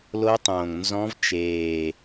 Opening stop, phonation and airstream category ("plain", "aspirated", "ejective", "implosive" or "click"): plain